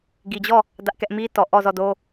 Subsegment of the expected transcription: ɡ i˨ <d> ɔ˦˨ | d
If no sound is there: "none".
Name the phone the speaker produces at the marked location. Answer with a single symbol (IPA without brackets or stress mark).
d͡ʑ